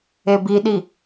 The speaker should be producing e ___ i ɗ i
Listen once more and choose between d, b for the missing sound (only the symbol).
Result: b